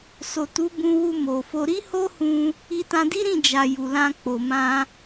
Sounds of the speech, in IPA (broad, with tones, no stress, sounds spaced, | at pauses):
s o˨ t u˨˦ b ũ˧ w u˧ m o˨ f o˧ ɾ i˦ h o˦ h ũ˧ | i˧ t ã˧ d i˦ ɾ ĩ˦˨ d͡ʒ a˨ j u˨ l ã˧ k͡p o˨ m ã˧